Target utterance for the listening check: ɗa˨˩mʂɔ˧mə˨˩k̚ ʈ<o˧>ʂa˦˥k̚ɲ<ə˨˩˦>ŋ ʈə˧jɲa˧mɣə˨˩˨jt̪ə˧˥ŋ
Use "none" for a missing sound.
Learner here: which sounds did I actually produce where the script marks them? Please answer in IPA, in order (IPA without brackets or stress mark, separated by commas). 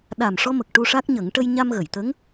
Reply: u˧, ə˨˩˦